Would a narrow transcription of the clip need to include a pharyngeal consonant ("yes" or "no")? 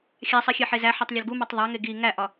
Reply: yes